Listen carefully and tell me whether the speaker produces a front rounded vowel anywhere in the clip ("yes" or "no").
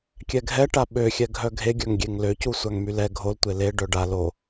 yes